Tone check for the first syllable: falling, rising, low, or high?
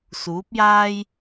rising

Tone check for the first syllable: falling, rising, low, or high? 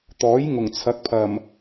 rising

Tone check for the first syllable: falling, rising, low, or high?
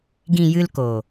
low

